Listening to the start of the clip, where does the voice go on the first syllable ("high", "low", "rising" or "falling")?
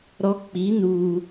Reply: high